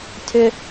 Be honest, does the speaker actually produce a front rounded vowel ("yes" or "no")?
yes